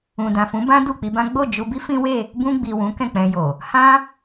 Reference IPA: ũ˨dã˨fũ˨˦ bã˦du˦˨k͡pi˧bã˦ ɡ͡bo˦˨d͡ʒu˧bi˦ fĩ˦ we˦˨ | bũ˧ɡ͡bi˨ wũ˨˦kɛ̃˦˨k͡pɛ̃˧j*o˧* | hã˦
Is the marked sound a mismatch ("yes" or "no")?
yes